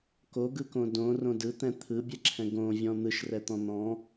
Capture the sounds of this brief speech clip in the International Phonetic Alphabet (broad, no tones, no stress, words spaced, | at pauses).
koɡɯkõ dõrõ dɯt̪ɛ̃ t̪ʰɯbʲɛǁʰɛ̃ ɡõvʲɔ̃ n̪ɯʃrɛt̪ɔ̃ n̪ɔ̃